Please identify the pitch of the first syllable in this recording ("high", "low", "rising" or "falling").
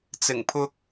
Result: low